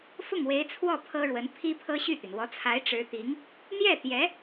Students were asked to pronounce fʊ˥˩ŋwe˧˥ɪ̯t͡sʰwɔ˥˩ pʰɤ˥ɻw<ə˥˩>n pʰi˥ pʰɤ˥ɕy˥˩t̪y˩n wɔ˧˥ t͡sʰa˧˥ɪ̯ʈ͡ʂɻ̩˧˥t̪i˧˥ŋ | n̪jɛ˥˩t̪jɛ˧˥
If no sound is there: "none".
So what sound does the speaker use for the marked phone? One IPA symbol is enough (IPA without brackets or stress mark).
ə˧˥